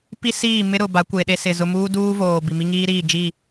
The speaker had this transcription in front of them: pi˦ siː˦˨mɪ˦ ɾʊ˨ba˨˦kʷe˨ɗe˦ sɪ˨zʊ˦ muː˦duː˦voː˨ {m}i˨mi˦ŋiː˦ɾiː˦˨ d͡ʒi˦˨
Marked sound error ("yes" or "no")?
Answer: yes